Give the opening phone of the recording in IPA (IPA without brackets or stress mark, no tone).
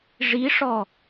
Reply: ʐ